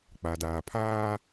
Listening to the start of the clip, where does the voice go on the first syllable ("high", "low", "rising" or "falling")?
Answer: low